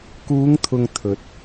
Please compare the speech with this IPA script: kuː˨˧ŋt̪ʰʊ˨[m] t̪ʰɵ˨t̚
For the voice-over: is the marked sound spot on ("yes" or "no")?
no